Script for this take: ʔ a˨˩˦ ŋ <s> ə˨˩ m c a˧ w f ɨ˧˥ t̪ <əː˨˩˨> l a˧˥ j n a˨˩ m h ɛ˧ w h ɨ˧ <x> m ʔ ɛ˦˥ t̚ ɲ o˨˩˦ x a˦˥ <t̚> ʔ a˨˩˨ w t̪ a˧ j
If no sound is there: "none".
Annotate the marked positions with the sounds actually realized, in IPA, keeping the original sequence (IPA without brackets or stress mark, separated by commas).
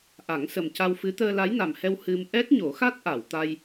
s, əː˧, none, t̚